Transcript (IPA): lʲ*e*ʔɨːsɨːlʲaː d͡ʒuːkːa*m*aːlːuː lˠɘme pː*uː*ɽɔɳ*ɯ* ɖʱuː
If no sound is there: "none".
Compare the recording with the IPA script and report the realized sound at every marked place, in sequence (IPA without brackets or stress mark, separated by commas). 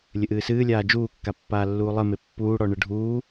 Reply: ɘ, pː, uː, ɯ